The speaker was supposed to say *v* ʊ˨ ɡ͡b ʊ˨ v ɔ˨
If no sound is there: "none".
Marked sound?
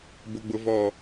b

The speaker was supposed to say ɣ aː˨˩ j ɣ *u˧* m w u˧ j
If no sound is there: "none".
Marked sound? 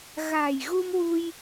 u˧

